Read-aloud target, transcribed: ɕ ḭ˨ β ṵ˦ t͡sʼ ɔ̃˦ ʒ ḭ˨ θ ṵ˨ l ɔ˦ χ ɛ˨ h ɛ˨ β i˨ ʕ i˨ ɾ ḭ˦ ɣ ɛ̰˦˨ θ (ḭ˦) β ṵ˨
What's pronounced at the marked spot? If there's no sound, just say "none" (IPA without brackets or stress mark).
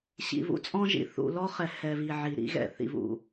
ḭ˨